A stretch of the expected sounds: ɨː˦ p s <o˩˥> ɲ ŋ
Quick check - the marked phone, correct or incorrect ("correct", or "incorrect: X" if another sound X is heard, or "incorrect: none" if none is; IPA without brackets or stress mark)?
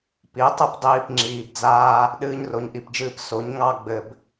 correct